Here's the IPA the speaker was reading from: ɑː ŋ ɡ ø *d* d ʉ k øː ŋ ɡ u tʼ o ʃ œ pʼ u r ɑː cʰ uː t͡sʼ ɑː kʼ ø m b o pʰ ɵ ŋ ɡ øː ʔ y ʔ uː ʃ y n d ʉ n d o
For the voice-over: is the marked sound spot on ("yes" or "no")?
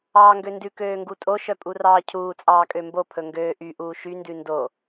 no